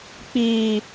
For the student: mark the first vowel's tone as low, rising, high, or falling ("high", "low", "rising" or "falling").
high